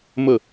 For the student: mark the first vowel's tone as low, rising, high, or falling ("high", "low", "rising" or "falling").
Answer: falling